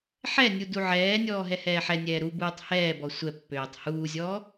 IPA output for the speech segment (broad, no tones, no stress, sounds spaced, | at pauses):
ħ ɛ nʲ u d u ʕ ɛː nʲ ɔː ɦ ɛ h ɛː ħ ɛ nʲ ɛː ɾ u b uː tˤ h ɛː b ɔ sʷ ɛ pː øː tˤ h uː zʲ ɔː